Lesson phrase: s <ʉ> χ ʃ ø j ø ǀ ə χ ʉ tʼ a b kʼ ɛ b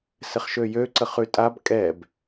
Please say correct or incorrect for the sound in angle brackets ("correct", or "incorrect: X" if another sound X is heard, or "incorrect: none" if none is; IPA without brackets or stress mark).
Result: incorrect: ɘ